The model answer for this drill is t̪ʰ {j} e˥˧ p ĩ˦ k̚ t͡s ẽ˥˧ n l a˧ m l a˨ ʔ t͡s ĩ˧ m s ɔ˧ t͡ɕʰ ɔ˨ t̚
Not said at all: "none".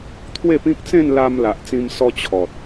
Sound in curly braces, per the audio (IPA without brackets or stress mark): w